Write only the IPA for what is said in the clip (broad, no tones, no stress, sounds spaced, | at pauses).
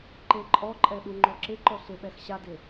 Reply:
ǃ e ǃʼ ɔ ǃʼ ɛ ɗ u ŋ͡ǃ ɔ ǁ ɪ ǃ ɔ ɬ ɪ ɓ ɛ x ɕ a d ɪ